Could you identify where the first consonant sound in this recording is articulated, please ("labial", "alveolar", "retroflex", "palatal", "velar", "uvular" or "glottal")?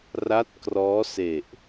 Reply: alveolar